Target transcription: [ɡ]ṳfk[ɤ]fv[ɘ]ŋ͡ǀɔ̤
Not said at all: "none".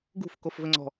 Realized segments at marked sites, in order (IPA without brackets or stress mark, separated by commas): ɡ, o, ɘ